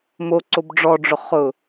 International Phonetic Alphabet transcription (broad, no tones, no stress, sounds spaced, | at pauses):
m o ǀ o b ɖ͡ʐ ɔ ɖ͡ʐ ʊ χ ʊ